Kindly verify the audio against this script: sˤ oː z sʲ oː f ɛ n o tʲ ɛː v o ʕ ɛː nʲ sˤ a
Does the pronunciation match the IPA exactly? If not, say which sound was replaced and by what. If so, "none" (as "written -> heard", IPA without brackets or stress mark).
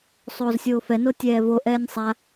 ʕ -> ʔ